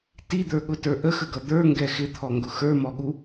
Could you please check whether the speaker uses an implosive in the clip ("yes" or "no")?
yes